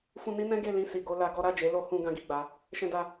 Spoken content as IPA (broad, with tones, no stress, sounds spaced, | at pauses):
f ũ˧ n i˦ n ɛ̃˦ ɡ e˦˨ l ĩ˧ s i˨ ɡ o˧ l a˧ ɡ ɔ˦ ɾ a˦˨ d͡ʒ e˨˦ l o˧ h ũ˧ ɡ ã˦ ɡ i˦˨ ɡ͡b a˨˦ | ʃ ɛ̃˦ d a˦